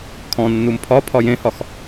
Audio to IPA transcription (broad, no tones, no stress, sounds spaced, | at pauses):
kʰ ɔ̃ nː u m pʰ ɒ pʰ ɒ j ẽ h ɒ x